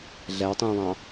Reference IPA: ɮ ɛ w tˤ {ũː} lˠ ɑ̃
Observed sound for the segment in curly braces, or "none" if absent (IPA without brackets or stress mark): ũː